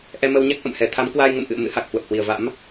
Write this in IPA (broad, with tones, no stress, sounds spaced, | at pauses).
ʔ ɛ˧ m ə˧ w ɲ a˦˥ k̚ ʔ ə̰˧˨ m h ɛ˧˩ t̪ʰ a˨˦ m k w aː˧ j ŋ ə̰˧˨ m ʔ ɨ̰˧˨ ə̯ m ɨ̰˧˥ h a˨˩ k̚ h w ə˨˩ p̚ h w i˧˩ ə̯ v a̰˧˥ m